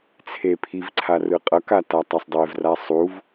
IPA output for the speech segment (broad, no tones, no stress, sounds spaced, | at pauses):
t͡sʰ e pʰ i v ǀʰ a r ɯ qʼ ʌ k a t a tˤ a sˤ dˤ e v r a sˤ u v